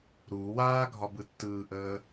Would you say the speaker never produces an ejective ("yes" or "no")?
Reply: yes